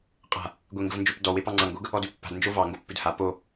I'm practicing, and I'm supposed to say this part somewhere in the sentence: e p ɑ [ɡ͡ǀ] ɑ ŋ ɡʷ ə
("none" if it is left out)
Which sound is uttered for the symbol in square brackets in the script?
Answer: ŋ͡ǀ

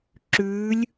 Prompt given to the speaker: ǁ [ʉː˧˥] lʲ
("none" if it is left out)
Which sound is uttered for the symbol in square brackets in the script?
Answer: ʉː˧˥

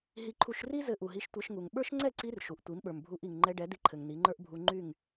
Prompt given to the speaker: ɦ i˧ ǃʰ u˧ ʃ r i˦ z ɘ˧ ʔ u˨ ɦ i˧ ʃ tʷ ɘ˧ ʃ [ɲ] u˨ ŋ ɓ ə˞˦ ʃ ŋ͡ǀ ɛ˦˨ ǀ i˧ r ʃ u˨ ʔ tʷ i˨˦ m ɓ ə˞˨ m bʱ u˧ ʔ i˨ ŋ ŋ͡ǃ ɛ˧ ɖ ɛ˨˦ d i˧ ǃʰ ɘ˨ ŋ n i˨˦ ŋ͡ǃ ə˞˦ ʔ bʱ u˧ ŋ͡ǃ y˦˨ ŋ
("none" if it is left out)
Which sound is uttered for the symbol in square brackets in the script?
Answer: ŋ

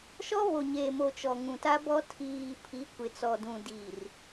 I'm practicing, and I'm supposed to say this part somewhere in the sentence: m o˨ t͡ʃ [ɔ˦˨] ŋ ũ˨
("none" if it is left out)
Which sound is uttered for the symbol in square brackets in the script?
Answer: ɔ˨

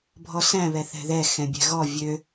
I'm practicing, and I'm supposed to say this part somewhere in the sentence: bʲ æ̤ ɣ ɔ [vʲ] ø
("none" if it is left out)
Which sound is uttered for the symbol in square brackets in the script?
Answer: vʲ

